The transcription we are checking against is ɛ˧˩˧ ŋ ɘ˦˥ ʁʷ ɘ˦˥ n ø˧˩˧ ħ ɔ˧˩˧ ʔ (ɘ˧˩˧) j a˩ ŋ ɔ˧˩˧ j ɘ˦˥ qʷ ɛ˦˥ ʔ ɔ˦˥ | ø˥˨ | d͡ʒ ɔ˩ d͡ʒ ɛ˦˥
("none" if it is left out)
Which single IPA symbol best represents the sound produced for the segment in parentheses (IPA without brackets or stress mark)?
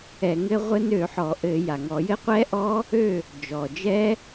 ɘ˧˩˧